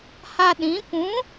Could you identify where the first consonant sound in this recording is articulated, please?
glottal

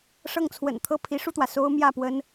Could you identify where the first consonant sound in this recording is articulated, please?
retroflex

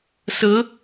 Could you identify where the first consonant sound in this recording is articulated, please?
alveolar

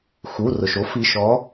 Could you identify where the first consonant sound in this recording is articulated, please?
velar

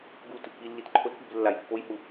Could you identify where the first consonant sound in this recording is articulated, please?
velar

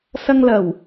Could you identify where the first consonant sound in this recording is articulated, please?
alveolar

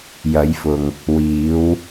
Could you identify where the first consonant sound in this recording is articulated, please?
palatal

